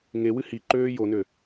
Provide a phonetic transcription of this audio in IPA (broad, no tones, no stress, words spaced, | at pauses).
ŋewɨ hi ǃøːjonø